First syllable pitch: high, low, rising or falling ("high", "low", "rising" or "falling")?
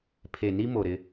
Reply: low